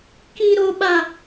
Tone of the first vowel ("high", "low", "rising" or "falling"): high